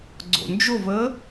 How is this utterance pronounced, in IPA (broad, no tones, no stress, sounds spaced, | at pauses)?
ɡ͡ǀ o̰ n d͡ʒ o v əː